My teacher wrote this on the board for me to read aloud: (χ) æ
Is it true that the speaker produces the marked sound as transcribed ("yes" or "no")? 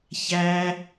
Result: no